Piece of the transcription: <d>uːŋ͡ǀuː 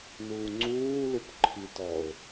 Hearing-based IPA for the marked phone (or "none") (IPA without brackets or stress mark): n